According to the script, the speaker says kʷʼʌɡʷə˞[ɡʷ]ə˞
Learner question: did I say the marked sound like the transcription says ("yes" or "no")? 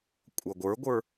yes